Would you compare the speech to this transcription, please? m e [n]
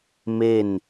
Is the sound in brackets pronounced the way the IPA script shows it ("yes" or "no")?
yes